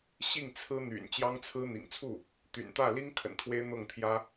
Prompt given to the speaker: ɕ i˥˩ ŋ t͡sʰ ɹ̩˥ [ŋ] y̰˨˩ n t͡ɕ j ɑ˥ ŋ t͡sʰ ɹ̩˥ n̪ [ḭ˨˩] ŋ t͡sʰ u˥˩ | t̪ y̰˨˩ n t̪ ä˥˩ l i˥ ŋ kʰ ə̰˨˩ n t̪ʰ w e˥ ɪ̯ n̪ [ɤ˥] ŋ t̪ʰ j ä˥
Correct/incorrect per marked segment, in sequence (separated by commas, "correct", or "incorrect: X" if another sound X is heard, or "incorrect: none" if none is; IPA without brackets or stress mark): incorrect: n̪, correct, incorrect: ɤ˥˩